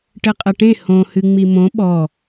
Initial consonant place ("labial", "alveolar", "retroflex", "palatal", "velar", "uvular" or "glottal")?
retroflex